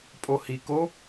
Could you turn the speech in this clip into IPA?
pʼ o h i k o

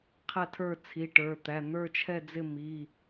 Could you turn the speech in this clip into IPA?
qʰ æ˥˨ tʰ ə˞˥˨ t͡sʰ i˩˧˩ ʈ ə˞˩˧˩ t̪ æ˩˧˩ n̪ ə˞˥˨ t͡ʃʰ ɛ˥˨ d͡z ɪ˥˨ m i˩˧˩

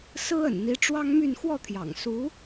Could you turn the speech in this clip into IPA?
s ɹ̩˥ ə̰˨˩ n n̪ i˧˥ ʈ͡ʂ w ɑ˥ ŋ m y˥˧ n x w ɔ˥˩ t̪ʰ j ɑ̰˨˩ ŋ s u˧˥

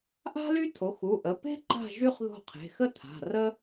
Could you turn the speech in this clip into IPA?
ʔ a̤˥ l y˥ tʰ o˩˧˩ x u˩˧˩ ʔ ə˩˧˩ p e̤˥ ǃ a̤˦˨ ʒ y˥ χ ð o̤˦˨ qʰ e̤˩˧˩ x ə˥ tʰ a̤˩˧˩ r ə˥

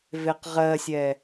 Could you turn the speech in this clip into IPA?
v e q ʁ ɜ sʲ ɛ

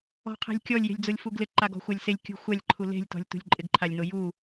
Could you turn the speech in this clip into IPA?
ɔ̤ qʰ e̤ lʲ kʲ ɔ lʲ j e̤ lʲ d͡z o lʲ f u ɡ l ɪ ǃ a ɡ ɔ̤ xʷ a lʲ s e lʲ kʲ ṳ xʷ a lʲ ǃʰ u l e̤ lʲ t ɔ̤ lʲ t ṳ lʲ ǃʼ ɪ ɡ ǃʰ a lʲ n o j u

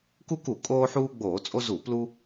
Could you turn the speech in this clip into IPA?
k u˦ k u˧˩˧ kʼ oː˦ ħ uː˦ ɡ͡b oː˧˩˧ t͡sʼ o˦ z u˧˩˧ p l u˦

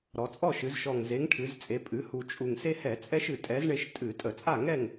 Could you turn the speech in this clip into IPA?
ɾ ɔ˩˧ t͡sʼ ɔ˥˨ ʃ ɨ˩˧ z ʃ ɔ˨˩ ŋ z e˨˥ ŋ ʈʰ ɨ˩˧ z t͡sʼ e˩˧ pʼ ɨ˩˧ h u˨˩ t͡ʃʼ u˨˩ ŋ s e˦ h ɛ˧˩˧ t͡sʼ ɛ˦ ʃ ɨ˨˩ tʼ ɛ˨˥ z ɳ e˦ ʃ tʼ ɨ˧˩˧ tʼ ə˧˩˧ t͡sʼ a˥˨ ŋ ɛ˥˨ ŋ

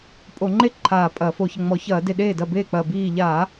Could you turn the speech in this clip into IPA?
pʼ o˧˩˧ ŋ͡ǃ e˥˩ ǃʰ aː˧˩ pʼ ɐː˧˩˧ f o˧˩ ç ə˥˩ ŋ͡m ɔ˧˩˧ ç ɐː˧˩˧ d e˧˩ ɗ eː˥˩ d ɐ˥˩ b eː˥˩ k͡p ɐː˧˩ b iː˧˩ ʎ aː˧˩˧

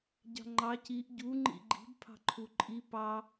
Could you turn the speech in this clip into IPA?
ɟ ɑ̤ ŋ͡ǃ ɑ c i ʔ ɟ u ŋ͡ǃ ḭ ɡ͡ǃ i̤ b pʰ ɑ̤ ǃʰ u ǃʼ i p ɑ

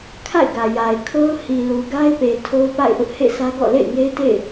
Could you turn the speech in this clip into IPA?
kʰ a̰˦˨ ɪ̯ ɡ ä˨ j a˨ ɪ̯ kʰ o˦ ʊ̯ h i˨ l u˨ ɡ a˦ ɪ̯ p e˨ tʰ o˦ ʊ̯ p a̰˦˨ ɪ̯ ʔ ʊ˦ ʔ h ḛ˦˨ sʰ ä˦ ɡ ɔ̰˦˨ l ḛ˦˨ ɪ̯ ŋ e˦ ɪ̯ t ḛ˦˨ ɪ̯

